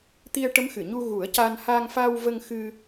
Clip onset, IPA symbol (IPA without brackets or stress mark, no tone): t̪